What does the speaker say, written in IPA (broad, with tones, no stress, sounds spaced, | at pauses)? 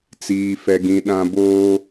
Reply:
t͡s iː˨ f ɛ˨ ɡ ĩ˨ ɗ ã˦ b oː˦